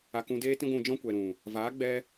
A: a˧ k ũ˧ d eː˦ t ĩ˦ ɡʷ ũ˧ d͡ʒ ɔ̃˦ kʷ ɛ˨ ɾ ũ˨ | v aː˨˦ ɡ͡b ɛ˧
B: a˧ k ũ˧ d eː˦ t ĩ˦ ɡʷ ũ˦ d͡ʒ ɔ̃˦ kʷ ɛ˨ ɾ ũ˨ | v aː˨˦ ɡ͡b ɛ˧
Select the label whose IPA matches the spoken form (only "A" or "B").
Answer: A